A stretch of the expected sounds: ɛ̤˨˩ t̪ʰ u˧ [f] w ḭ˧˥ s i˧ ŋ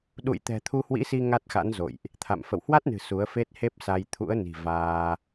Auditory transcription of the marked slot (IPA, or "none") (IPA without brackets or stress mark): h